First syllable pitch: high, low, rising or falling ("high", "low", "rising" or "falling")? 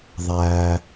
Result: high